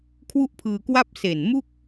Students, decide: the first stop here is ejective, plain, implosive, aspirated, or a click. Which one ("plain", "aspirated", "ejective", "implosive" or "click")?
aspirated